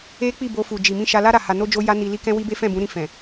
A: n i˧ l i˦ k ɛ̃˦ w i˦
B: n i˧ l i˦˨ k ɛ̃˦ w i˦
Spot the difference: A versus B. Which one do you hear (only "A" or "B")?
A